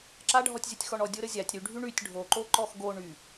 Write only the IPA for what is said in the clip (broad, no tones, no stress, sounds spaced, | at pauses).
ǁ a ɖʱ ɔ tʲ zʲ o tʲ x ɔ ɳ ɔ dʲ o ɾ ə zʲ a tʲ ɾ y ɖʱ y ɳ y tʲ ɖʱ o ǃ o ǃ ɔ x ɡ o ɳ y